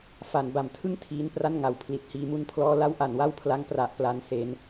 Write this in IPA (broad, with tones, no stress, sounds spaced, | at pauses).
f a˩˦ n b a˩˦ m tʰ ɯ˥˩ ŋ tʰ iː˦˥ n p r a˥˩ n ŋ a˨˩ w pʰ l i˦˥ t̚ h iː˧ m u˥˩ n pʰ l ɔː˥˩ l a˥˩ w ʔ a˩˦ n w a˥˩ w pʰ l a˦˥ ŋ p r a˨˩ ʔ p l a˧ n s e˧ n